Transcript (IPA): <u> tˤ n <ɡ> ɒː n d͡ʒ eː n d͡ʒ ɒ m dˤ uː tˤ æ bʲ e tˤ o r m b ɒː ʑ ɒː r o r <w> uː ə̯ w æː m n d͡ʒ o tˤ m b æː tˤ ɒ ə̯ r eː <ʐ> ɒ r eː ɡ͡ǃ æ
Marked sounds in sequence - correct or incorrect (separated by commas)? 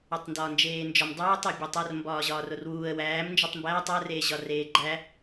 incorrect, incorrect, correct, incorrect